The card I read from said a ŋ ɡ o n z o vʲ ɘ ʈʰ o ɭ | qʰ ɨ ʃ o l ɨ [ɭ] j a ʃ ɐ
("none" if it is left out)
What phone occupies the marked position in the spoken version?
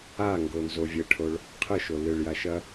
ɭ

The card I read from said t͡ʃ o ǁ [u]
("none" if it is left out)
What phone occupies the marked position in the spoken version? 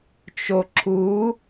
u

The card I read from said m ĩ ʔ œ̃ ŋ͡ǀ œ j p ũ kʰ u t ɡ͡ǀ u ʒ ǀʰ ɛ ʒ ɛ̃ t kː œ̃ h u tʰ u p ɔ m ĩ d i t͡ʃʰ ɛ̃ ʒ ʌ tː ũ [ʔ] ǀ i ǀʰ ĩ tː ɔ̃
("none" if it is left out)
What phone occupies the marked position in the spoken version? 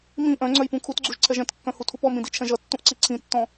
ʔ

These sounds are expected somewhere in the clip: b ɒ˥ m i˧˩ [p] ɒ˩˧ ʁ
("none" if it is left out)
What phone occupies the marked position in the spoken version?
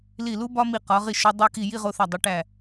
q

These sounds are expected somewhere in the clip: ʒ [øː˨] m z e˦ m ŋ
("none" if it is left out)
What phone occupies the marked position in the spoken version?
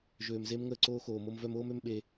øː˨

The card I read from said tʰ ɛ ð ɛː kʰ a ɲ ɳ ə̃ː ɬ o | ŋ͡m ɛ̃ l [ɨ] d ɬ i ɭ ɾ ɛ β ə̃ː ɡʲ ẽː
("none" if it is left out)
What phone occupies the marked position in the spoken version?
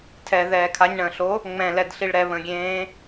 ɛ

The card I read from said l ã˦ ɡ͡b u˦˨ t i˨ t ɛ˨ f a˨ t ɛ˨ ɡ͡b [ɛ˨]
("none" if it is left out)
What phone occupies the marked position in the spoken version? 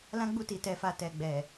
ɛ˨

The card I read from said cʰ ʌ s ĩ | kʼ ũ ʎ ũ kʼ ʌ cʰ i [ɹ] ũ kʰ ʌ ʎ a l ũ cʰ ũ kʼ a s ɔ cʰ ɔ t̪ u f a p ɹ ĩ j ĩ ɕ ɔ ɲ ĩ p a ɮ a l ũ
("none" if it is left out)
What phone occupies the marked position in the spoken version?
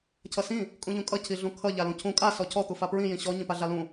ɮ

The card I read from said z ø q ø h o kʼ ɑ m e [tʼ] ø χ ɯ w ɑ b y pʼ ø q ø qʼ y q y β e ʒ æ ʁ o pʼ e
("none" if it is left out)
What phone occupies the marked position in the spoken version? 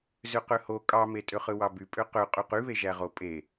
tʼ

